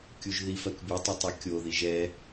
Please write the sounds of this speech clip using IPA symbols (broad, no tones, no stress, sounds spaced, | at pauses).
kʲ u ʒ ð i f ɜ k bʲ o tˤ ɛ tˤ o kʲ o ð i ʒ ɛ